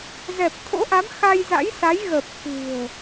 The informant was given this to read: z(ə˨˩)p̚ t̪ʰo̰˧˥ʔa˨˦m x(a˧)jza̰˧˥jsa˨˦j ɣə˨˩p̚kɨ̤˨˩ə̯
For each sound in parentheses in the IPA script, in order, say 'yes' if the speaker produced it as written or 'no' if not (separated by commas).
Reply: no, yes